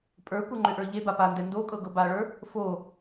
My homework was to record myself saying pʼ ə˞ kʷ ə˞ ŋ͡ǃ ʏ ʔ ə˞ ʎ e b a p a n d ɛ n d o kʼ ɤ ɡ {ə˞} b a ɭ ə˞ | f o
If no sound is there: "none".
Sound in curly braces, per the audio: ɤ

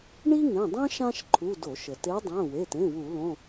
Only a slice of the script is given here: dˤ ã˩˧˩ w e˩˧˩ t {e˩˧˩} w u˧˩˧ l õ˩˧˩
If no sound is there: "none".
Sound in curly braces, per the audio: ẽ˩˧˩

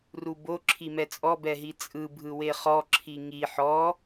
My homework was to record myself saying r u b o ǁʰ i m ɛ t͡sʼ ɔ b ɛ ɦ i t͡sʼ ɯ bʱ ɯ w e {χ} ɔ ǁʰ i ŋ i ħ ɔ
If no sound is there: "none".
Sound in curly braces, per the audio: χ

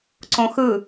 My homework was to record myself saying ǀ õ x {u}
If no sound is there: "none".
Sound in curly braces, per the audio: ɯ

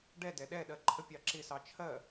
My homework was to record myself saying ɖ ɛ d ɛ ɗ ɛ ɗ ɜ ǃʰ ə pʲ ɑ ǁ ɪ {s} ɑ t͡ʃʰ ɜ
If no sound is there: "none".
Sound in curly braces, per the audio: s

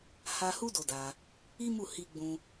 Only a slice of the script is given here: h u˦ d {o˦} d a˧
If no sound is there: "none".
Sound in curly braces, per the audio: o˧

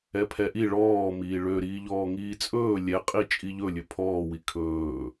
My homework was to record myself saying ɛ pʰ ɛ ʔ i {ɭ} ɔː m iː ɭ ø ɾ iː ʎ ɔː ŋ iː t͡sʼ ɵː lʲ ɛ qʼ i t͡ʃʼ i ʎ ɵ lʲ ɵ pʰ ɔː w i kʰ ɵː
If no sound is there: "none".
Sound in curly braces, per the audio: ɭ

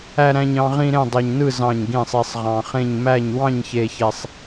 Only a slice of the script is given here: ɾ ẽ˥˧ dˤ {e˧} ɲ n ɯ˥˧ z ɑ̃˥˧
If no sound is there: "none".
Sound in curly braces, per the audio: e˧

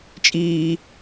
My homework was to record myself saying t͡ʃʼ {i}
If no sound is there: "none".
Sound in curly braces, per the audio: iː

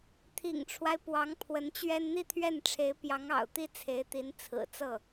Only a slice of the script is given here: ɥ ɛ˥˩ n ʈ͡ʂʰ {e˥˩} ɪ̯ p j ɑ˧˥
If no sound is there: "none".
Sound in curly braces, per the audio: e˧˥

